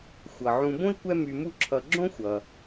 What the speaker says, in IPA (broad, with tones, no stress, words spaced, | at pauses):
xʷʌ˩ʕũ˨bõ˥i̯kʷɛ˦ my˨mu˦ ǁʰʌ˨ɡ͡ǁõ˥ xʷʌ˩